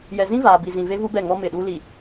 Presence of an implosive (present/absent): present